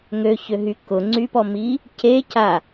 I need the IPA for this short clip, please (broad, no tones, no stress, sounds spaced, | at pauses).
ŋ ø ç ø ɦ y k ʊ ŋ͡ǀ y p ɔ m i | c e c a